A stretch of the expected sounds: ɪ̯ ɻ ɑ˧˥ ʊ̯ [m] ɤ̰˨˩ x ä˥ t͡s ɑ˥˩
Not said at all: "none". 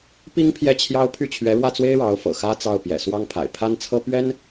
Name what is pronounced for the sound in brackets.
f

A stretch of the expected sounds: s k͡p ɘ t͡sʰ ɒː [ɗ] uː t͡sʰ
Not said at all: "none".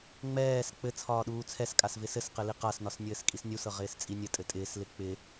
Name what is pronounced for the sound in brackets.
ɗ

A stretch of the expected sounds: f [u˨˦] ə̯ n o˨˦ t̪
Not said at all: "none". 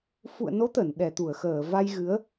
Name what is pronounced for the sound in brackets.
ṵ˧˨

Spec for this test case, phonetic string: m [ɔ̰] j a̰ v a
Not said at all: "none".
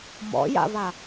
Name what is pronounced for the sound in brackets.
ɔ̰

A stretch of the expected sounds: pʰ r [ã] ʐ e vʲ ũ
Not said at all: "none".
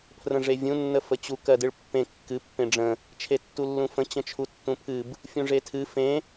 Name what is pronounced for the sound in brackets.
ə̃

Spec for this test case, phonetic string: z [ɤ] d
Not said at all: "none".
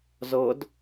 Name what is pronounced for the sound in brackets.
ɤ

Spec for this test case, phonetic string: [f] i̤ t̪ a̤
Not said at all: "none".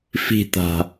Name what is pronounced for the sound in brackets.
f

